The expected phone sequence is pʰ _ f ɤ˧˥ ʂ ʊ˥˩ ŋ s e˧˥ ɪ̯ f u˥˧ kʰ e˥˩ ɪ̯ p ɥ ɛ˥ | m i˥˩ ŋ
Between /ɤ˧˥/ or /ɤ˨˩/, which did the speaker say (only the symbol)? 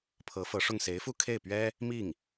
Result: ɤ˧˥